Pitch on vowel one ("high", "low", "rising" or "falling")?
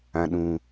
low